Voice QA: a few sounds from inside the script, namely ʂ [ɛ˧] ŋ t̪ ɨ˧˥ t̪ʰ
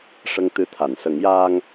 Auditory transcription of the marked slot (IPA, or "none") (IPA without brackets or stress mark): ə˧